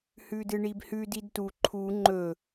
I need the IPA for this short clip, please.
h ʉ d ɨ ɳ i b h ʉ d i d t u ǃʰ u ŋ͡ǃ ɵ

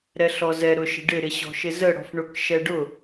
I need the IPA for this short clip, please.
ɾ ɛ ɬ ɔ z ɛ ɾ ʊ ʃ ə̤ ɖ ɪ ɾ ɪ ɕ ɔ̤ ʃ ɪ z ə ɽ ɔ̤ f ɳ ʊ k ʃ ɛ ɖ ʊ

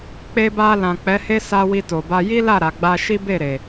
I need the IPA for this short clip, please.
k͡p e˧ b a˧ l ã˨ k͡p ɛ˨˦ h e˦ s a˧ w i˧ t o˨ b a˧ j i˦ l a˦˨ ɾ a˨ ɡ͡b a˧ ʃ i˦ b e˦˨ ɾ e˨

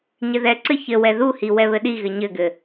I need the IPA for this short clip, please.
ɲ ɘ ð ɛ ǀ ɘ ç ɘ w ɛ ð u h i w ɛ β ɘ ɗ i ɣ ɘ ɲ ɘ ɡ ɘ

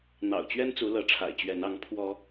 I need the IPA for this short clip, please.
n̪ ɑ̰˨˩ ʊ̯ t͡ɕ ɥ ɛ˦ n t͡s u˨˦ l ɤ˨˦ ʈ͡ʂʰ a̰˨˩ ɪ̯ t͡ɕ ɥ ɛ˨˦ n ɑ˨˦ ŋ pʰ w ɔ˨˦

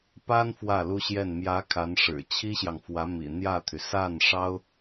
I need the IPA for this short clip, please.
p a˥ n f w ä˥˩ l u˥ ɕ j ɛ˥˩ n m j ä˧˥ kʰ a˧˥ n ʂ ɻ̩˨˩ t͡ɕʰ i˥ ɕ j ɑ˨ ŋ f w ä˧˥ m ḭ˨˩ n̪ j ä˥˩ t̪ʰ y˩ s a˥˩ n ʂ ɑ˥ ʊ̯

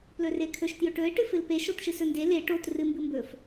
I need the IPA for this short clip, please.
p l ɵ r e kʰ ɵ ʃ t j ɵ ʈ ɵ ɪ̯ ʈ ɨ f ɨ l p e ʃ o t ʃ ɨ s ɵ n d e l e ʈ o t r ɨ m b ɨ m b ɵ f

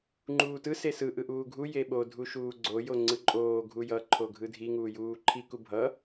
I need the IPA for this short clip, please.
ŋ͡ǃ uː t ɯ s e s ɯ ʔ ɯ ʔ uː ɡʱ u j e ɓ o dʱ u ʃ uː ɡ͡ǀ o j o ŋ͡ǀ ɯ ǃʼ oː ɡʱ u j ʌ ǃʰ o ɡʱ ɯ dʱ i ŋ uː j uː ǃʰ i k u bʱ ʌ

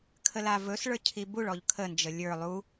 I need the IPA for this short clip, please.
kʰ ə l a v ɵ s ɭ ə˞ cʰ i b u ɭ ɔ ʎ kʰ ə n d͡ʒ ə lʲ ə˞ lˠ u

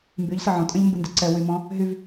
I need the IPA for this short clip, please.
m b y ʎ s ə ʕ ɔ̃ tʼ ə̃ ʎ m b ɨ n d ɨ ǀ ɛ w y m ɔ̃ | ɦ y v

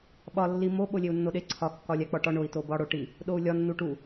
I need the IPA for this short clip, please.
ɓ ɒ lː i m o ɓ o lʲ e u̯ nː o ɗ e ǀʰ ɒ kː ɒ lʲ æ k͡p ɒ ʈ ɒ ɳ o i̯ t o b ɒ ɽ o ʈ i | ɗ o u̯ lʲ ɒ nː u ʈ u

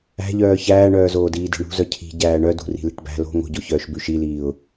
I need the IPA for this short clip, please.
æ̤ ʎ œː ç æː ɳ œː z oː d iː d i̤ ɳ ṳ z œ cʰ i̤ ɟ æː ɳ œ d ṳ r i̤ l i̤ ʈ b æ̤ l o̤ ŋ o̤ ɟ o ç œː ʃ b ʉ ʃ i l iː ʊ̯

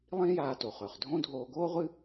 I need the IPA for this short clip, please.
lˠ ĩː˥ j aː˧ t o˩ χ ɵː˩ χ dʱ õ˥ dʱ oː˧ ɡ oː˥ ʁʷ ɨ˥

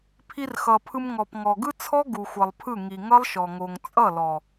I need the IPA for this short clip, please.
pʰ i˧ r x ʌ˨ pʰ ɯ˧ m ŋ ɔ˨ p ŋ ɔ˨ ɡ ɯ˦ t͡sʰ ɔ˦ ɡ u˨ xʷ ʌ˨ lˠ pʰ ɯ˦˨ ŋ i˨ ŋ ʌ˦ lˠ ʃ ɔ˨ ŋ o˨ ŋ t͡sʼ ʌ˦˨ l ɔ˨

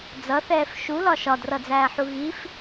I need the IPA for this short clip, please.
d͡z ʌ θ ɛː f ʃ u l ɒ ʃ ɒ d r ʌ d͡z æː ħ u ɣ i f

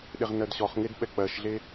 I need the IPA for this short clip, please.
ɗ e ʁ n ɜ d ɕ ɔ χ ŋ e d ɓ ɛ k͡p ɜ ʃ ɮ e

